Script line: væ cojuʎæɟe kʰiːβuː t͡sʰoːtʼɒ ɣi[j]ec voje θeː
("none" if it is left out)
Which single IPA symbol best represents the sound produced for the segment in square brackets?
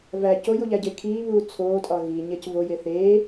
ɲ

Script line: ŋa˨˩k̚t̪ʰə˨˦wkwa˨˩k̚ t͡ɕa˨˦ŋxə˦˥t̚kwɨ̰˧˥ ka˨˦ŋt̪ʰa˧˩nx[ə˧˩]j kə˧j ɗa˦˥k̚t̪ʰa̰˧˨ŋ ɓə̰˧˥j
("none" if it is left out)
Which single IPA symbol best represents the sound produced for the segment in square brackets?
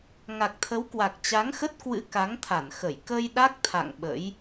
ə˧˩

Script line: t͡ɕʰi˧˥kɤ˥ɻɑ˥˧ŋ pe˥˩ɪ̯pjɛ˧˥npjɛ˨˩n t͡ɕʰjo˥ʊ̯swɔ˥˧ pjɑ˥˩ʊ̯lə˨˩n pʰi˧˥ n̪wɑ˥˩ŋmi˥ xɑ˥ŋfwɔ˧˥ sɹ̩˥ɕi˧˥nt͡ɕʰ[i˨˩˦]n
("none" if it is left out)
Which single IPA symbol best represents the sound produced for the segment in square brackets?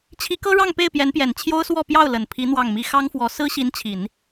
i˨˩˦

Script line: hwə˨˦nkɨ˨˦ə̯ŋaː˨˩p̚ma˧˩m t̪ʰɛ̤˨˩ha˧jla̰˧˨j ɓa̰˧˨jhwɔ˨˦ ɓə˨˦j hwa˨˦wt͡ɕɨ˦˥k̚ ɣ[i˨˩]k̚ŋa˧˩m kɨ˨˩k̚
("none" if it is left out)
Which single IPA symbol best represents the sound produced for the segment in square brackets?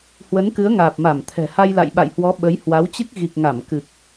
i˨˩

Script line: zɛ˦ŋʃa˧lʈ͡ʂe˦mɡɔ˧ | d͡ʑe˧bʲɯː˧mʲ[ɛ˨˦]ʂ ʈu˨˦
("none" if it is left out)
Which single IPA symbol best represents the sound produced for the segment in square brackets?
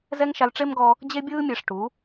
ɛ˨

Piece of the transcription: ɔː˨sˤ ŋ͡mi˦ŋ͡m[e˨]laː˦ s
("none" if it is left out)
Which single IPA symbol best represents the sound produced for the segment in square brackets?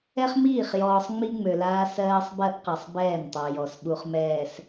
ø˨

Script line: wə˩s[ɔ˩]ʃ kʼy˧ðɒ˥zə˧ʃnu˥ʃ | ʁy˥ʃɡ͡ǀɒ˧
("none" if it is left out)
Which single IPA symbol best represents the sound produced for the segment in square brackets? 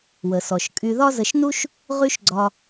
ɔ˩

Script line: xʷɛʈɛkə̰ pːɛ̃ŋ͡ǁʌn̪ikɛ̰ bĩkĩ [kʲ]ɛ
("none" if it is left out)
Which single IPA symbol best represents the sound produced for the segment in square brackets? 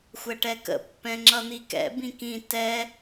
t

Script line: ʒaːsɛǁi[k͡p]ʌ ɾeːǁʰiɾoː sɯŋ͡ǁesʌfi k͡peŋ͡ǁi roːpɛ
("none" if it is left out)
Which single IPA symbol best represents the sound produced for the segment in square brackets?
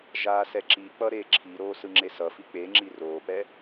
k͡p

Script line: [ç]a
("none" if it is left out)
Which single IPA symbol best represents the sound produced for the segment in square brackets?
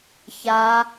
ç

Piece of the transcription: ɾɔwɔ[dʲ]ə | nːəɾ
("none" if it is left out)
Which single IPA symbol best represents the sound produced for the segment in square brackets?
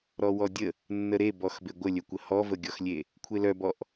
dʲ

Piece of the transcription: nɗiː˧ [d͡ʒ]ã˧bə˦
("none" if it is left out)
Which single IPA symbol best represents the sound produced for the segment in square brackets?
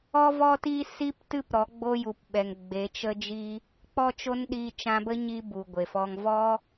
t͡ʃ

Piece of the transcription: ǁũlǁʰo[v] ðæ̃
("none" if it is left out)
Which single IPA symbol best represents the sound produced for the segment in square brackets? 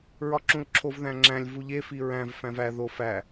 v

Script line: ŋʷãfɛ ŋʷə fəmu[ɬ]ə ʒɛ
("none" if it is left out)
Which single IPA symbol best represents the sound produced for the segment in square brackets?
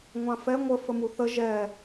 θ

